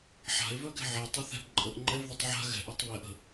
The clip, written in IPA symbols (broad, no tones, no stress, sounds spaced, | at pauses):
ħ a̤ e̯ v œ ɡ ɛ̤ ʕ ɛ tˤ ə˞ θ ɛ̤ b ǃʼ ə ʔ ŋ͡ǃ ɛ v ð ə tˤ ʕ a̤ ɣ ɛ̤ ʔ ə˞ tˤ β ɛ ʔ ə̤